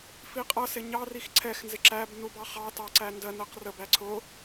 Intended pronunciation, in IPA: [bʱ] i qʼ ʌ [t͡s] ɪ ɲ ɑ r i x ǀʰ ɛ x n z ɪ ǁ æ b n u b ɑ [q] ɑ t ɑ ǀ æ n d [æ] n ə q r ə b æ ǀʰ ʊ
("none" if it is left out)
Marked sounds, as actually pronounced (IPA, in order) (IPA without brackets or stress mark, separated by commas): f, s, χ, ɜ